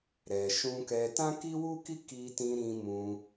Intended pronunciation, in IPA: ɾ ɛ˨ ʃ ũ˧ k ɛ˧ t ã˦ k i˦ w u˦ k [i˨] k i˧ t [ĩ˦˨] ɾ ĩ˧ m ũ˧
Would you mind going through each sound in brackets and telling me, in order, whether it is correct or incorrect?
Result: incorrect: i˦, incorrect: ĩ˧

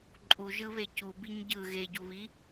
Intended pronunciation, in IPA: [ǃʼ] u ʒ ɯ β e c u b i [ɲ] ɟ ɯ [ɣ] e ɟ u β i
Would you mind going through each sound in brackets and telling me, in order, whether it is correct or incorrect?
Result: correct, correct, correct

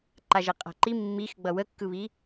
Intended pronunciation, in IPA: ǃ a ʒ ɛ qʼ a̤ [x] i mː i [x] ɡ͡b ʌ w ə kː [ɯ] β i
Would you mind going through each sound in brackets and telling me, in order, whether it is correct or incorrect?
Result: incorrect: ǃ, correct, correct

